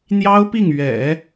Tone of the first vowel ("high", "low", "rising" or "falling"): high